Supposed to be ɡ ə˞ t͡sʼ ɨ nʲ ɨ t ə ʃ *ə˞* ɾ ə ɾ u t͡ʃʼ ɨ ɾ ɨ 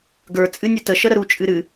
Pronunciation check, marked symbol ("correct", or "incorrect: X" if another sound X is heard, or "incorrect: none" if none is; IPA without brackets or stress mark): incorrect: ə